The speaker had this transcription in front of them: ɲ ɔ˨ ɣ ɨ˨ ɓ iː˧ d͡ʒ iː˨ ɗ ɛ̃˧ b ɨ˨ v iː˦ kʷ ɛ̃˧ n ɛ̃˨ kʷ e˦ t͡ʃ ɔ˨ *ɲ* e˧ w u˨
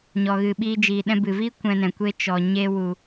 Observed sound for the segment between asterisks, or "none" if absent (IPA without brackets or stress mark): ɲ